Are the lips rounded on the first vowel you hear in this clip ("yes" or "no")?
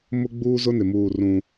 yes